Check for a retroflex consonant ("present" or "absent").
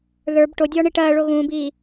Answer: present